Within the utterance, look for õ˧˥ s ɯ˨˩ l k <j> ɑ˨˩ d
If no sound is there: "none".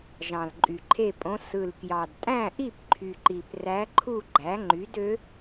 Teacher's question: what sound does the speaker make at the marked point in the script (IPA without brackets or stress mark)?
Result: j